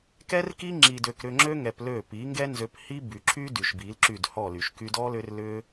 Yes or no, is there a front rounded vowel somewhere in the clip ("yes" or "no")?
yes